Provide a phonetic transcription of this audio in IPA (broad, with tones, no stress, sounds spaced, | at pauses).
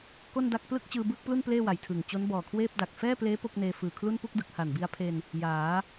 k o˥˩ n d a˥˩ k̚ p l ɯ˥˩ k̚ t͡ɕ ɯː˧ b ɯː˥˩ k̚ p l u˥˩ n p l eː˥˩ w a˨˩ j tʰ ɯː˨˩ ŋ t͡ɕ o˦˥ n b ɔː˨˩ kʰ w eː˥˩ p̚ d a˨˩ k̚ f ɛː˥˩ p l eː˦˥ p o˥˩ k̚ n eː˧ f ɯː˨˩ kʰ l u˥˩ n p u˥˩ k̚ d ɯ˨˩ k̚ h a˨˩ n b i˧ a̯ pʰ e˧ n | j aː˩˦